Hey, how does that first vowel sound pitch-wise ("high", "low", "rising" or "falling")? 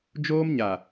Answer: high